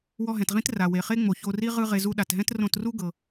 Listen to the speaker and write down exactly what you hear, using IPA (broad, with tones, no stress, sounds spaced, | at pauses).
w ɔ˧ ɦ ɛ̃˩ t ʁ ĩ˥ t r a˩ w e˩ χ e˥ ŋ͡m o˩ ç o˧ r i˥ ʁ ɯ˥ ʁ e˧ z u˥ ɗ a˩ t ɦ ɛ̃˥ t r õ˧ t r u˥ ɡ ɤ˩